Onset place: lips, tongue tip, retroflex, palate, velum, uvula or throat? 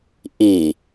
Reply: throat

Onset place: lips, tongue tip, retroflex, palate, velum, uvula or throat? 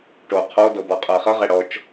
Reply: retroflex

